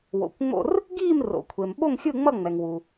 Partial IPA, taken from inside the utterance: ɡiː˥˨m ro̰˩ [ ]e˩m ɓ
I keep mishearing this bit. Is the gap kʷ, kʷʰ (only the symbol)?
kʷʰ